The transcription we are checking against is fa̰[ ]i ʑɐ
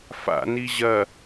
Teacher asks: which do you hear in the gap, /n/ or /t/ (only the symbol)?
n